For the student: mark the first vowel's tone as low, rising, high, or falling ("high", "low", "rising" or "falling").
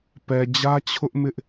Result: low